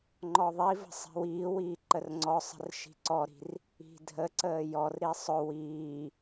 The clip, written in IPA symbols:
ŋ͡ǃ ɔ ðˤ i v ə̤ sˤ i̤ w iː w iː ǃ ə r ŋ͡ǀ ɔ sˤ ə̤ r ʃ i̤ ǀ ɔ ɾ i̤ r | i̤ dʱ ə ǀ əː j ɔ r ɾ i sˤ ʊ w iː

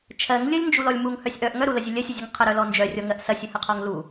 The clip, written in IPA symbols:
t͡ʃʰ ɜ ŋ lʲ ə lʲ n d͡ʒ u l ɔ lʲ m u ŋ h œ sʲ ʔ œ ʔ ŋ œ ɾ u l ɐ zʲ ɵ lʲ ɜ sʲ ə zʲ ə ŋ qʰ ə ɾ œ l ɔ n d͡ʒ œ rʲ ɔ ŋ ɜ ʔ s ɐ sʲ ɐ h ə qʰ ɔ ŋ l u

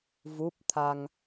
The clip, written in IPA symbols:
v u˦˥ p̚ t̪ʰ a˧ ŋ

